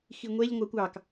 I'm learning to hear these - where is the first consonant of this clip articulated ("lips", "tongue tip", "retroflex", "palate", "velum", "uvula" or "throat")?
velum